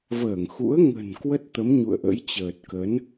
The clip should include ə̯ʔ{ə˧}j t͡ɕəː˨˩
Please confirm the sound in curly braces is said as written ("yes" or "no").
no